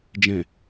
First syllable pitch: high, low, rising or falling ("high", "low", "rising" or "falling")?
low